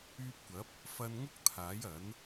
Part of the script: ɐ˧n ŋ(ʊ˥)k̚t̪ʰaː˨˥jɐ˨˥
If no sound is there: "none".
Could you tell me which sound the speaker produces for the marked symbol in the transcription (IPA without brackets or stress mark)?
ʊ˥